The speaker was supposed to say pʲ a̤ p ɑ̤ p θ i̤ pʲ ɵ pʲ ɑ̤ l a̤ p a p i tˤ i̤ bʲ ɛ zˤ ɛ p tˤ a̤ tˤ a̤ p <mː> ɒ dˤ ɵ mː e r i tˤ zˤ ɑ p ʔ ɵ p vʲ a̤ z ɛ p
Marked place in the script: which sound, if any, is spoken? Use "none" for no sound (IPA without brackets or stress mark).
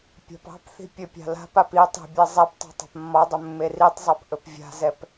mː